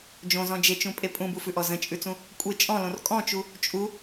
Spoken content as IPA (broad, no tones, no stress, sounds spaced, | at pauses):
d͡ʒ õ z ɔ̃ d͡ʒ e t͡ʃ ũ pʼ e pʼ ũ b u f ʉ ʔ ɔ z ə̃ t͡ʃʼ ʉ t͡s ũ | kʷʼ e t͡ʃʼ ɔ̃ l õ r kʼ ɔ̃ t͡ʃ u | t͡ʃʼ u